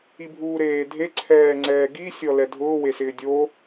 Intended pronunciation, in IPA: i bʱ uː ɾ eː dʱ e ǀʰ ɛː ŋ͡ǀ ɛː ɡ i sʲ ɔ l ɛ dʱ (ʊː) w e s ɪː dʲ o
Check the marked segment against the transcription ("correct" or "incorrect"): correct